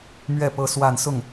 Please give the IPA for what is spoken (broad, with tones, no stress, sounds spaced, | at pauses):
m ɥ ɛ˥˩ p ɤ˥ s w a˥˧ n s ʊ˥˩ ŋ